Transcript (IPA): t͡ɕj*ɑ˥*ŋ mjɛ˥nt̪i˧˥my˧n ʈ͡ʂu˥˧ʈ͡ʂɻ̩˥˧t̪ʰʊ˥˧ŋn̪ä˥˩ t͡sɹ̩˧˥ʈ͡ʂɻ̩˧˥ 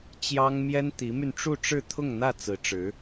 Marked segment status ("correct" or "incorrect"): correct